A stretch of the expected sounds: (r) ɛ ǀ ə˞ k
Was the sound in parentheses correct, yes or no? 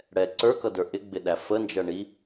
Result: no